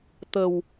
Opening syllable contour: low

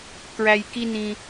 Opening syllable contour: high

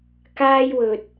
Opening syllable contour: high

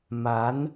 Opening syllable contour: rising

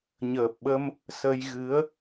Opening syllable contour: low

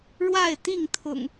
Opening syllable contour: falling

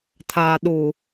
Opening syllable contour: low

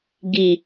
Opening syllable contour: low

